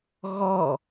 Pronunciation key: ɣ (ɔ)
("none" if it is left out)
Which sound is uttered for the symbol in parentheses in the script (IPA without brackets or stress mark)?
ɔ